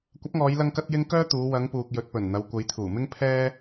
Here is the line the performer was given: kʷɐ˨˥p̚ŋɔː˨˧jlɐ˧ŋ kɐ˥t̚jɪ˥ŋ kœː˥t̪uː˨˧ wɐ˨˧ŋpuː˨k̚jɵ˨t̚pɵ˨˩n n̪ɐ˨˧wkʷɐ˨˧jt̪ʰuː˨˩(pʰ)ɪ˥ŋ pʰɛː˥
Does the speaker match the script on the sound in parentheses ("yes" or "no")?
no